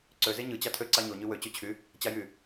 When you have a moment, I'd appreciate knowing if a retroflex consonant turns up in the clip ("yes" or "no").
no